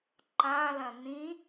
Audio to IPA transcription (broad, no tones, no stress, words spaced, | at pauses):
ǃãlɐ̃ nĩ